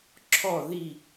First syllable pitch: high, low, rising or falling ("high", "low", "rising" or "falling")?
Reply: falling